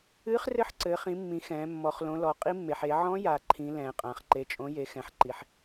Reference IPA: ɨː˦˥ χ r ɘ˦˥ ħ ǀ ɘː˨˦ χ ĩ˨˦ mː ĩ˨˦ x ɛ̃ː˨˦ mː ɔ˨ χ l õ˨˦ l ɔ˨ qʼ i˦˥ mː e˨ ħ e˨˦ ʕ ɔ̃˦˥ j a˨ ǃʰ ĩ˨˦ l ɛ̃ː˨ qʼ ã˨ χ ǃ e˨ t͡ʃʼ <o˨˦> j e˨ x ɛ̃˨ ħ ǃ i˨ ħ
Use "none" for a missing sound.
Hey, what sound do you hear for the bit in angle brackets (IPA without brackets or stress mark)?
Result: õ˨˦